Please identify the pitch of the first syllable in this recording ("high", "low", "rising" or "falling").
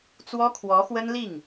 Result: high